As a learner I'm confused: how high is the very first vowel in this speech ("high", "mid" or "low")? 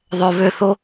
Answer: mid